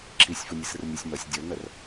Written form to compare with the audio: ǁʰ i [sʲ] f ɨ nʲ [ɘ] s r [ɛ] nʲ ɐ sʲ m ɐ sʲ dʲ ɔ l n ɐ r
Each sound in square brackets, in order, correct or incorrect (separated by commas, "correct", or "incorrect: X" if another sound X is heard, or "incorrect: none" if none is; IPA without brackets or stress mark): correct, correct, incorrect: ɨ